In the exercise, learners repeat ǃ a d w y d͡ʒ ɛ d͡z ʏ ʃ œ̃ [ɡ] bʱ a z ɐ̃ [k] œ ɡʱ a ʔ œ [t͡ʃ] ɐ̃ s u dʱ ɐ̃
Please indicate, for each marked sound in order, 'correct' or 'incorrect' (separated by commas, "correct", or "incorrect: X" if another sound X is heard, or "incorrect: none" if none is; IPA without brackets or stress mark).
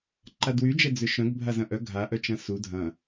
correct, incorrect: ʔ, correct